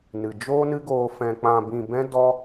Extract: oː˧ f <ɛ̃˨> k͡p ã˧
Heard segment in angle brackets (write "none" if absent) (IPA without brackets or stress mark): ɛ̃˧